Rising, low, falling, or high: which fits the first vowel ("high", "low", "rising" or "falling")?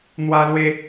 high